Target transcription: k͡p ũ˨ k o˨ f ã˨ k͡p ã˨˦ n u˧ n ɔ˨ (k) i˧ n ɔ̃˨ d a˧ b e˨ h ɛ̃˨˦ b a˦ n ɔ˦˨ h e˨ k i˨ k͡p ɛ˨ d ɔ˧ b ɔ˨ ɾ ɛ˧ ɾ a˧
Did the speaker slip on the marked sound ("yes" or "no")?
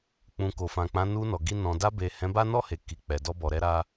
yes